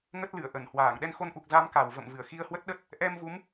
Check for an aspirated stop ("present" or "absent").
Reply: absent